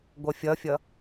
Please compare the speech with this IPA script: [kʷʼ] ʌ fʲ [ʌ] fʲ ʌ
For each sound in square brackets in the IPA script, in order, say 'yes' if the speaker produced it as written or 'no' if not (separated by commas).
no, yes